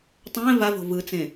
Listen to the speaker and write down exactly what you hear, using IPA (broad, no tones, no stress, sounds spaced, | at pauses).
tˤ ɛ̃ v a v o̤ v ɯ t͡s ẽ